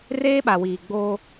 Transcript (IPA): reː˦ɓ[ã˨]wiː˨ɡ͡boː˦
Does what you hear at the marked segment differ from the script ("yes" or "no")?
yes